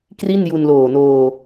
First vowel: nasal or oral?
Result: oral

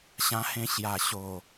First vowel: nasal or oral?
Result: nasal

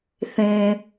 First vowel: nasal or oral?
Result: nasal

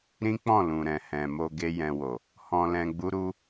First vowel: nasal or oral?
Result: nasal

